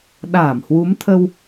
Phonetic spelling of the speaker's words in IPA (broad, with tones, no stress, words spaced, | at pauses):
ɗaː˧˩mhwu˨˦m t̪ʰə˧w